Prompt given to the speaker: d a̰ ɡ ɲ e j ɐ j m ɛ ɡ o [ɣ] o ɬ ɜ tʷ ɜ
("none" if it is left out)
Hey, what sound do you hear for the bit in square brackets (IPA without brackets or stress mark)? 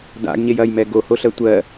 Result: h